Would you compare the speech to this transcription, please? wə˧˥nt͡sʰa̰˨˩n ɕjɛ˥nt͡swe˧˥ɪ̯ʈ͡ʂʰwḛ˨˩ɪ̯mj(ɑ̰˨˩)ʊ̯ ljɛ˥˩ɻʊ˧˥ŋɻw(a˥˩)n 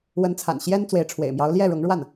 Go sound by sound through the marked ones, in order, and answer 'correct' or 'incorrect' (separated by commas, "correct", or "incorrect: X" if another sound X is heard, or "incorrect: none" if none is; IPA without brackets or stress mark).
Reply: incorrect: ɑ˧˥, correct